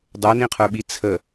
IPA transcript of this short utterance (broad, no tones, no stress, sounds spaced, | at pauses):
dˤ ə˞ n ĩ qʰ ə˞ ɓ i t͡sʰ ə